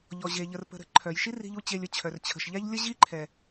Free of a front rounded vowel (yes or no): no